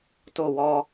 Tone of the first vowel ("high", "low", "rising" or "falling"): falling